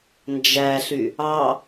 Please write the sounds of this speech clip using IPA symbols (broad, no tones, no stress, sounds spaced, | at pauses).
n d͡ʒ æ ɬ y | ɑ